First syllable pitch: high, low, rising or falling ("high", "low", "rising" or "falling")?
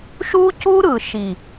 high